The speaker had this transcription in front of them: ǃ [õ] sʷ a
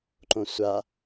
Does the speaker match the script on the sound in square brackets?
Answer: yes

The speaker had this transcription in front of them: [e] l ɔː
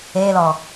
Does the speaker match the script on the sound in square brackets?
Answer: no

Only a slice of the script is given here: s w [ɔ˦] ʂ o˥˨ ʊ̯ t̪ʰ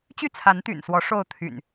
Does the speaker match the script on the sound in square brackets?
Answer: no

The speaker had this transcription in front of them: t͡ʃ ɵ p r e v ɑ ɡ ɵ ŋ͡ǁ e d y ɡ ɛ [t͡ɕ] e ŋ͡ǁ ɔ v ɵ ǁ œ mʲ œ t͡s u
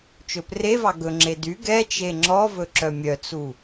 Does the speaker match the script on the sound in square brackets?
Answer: no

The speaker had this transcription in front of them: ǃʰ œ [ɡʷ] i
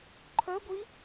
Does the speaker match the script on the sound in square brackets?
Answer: yes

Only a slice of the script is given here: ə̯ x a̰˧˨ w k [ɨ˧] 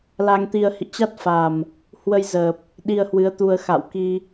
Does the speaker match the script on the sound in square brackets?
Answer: no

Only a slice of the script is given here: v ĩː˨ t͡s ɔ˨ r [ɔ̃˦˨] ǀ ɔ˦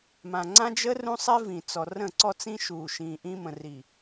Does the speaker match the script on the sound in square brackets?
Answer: no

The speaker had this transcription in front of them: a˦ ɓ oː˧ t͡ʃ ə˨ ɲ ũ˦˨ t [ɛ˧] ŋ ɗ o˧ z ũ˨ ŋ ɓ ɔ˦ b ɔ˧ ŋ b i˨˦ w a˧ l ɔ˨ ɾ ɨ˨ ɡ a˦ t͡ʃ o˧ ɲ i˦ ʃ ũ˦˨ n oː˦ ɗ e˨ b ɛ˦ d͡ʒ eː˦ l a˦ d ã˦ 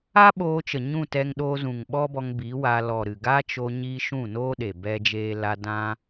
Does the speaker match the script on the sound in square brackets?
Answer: yes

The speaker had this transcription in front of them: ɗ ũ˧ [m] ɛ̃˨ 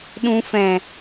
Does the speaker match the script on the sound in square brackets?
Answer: no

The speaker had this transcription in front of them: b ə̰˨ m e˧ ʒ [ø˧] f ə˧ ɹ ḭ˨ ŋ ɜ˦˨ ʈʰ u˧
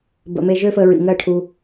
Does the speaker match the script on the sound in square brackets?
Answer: no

